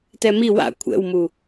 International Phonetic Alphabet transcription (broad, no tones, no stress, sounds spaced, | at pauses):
t ɛ m i w a̰ kʷʰ ɛ̰ w m u